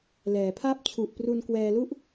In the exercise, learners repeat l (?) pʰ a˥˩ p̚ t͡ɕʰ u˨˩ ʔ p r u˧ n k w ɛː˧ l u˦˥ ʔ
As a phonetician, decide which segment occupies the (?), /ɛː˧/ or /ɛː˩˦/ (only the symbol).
ɛː˩˦